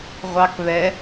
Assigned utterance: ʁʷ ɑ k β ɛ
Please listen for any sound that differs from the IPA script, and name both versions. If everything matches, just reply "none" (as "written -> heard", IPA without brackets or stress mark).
none